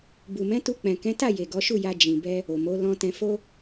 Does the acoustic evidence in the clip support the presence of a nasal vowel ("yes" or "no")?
yes